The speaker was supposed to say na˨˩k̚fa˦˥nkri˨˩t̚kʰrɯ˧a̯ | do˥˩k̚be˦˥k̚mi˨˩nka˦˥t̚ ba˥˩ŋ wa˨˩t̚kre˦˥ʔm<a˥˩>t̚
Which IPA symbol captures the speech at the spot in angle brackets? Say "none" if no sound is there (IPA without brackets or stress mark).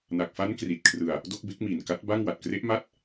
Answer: a˥˩